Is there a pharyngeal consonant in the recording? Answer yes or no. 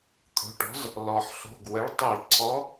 yes